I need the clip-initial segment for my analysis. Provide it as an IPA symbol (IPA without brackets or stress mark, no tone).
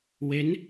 w